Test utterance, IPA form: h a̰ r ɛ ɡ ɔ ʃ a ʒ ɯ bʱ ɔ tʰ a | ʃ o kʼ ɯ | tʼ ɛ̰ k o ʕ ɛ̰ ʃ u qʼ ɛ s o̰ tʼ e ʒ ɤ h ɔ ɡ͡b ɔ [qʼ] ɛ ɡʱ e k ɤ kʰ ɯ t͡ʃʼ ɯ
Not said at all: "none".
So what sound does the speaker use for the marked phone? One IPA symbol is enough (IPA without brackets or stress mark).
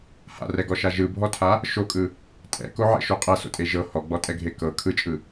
tʼ